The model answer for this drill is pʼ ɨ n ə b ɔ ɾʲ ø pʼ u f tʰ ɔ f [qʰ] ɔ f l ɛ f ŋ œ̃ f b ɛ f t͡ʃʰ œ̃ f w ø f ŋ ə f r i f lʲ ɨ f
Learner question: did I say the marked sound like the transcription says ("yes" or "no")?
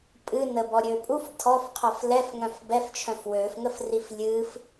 yes